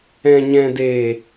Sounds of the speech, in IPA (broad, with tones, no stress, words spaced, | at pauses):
ɛ̃˨ɲɛ̃˨deː˨